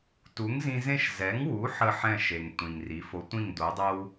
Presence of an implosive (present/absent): absent